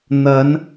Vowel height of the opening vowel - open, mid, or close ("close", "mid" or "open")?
open